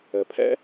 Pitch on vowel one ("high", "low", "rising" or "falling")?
low